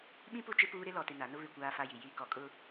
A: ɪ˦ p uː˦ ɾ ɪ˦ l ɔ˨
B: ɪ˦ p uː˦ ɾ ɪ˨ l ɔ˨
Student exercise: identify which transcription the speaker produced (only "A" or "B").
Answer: A